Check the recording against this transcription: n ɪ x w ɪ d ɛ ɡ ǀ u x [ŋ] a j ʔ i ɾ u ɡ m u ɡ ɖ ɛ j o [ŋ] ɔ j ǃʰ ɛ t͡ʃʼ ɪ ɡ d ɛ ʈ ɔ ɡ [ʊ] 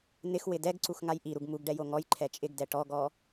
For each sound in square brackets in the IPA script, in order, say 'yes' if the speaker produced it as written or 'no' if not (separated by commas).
yes, yes, no